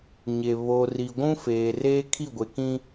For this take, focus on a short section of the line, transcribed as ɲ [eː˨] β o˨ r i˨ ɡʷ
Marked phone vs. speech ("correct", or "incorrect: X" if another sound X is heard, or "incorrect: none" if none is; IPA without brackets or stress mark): incorrect: e˨